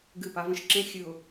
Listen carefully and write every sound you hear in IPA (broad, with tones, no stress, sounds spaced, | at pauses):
ɡ ɨ˦˨ p a˦ v ə̃˦ ʃ ǁ ẽ˦ xʲ ɨ˨ ʊ̯